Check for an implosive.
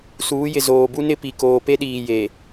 present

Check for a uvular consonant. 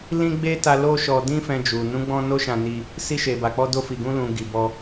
absent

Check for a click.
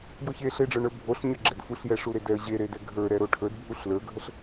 present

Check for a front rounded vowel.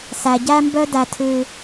present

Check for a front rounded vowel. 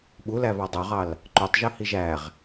present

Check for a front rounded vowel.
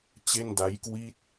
absent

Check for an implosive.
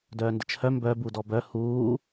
absent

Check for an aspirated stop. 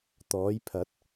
present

